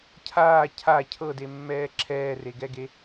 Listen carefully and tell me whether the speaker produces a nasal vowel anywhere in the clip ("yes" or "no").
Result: no